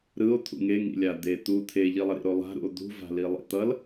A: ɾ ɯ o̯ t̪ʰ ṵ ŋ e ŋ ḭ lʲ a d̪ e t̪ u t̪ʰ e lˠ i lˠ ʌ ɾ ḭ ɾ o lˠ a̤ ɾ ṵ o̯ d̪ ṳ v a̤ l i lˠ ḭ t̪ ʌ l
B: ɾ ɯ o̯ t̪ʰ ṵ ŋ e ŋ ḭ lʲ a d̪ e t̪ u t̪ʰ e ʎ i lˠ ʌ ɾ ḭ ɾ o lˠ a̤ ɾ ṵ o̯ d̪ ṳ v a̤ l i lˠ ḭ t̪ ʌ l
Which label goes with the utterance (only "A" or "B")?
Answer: B